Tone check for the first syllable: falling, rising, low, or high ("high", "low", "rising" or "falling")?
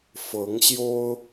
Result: rising